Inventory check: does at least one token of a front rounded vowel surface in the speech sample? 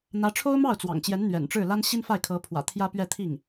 no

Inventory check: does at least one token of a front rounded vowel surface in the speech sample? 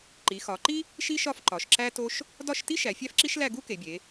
no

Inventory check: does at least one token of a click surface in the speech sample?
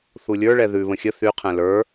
no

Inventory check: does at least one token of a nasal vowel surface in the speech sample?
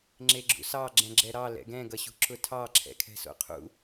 yes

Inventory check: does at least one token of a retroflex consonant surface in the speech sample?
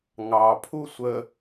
no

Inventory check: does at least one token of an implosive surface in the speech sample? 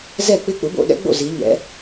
yes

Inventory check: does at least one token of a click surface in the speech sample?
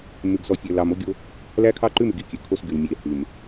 yes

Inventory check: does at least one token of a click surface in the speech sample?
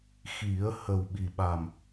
no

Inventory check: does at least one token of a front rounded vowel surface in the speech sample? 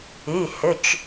yes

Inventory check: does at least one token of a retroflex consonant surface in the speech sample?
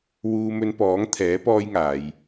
no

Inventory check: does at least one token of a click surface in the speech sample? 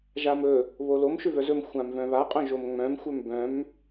no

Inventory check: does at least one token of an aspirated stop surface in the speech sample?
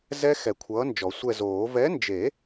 yes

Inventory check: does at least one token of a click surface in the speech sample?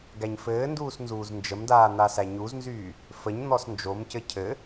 no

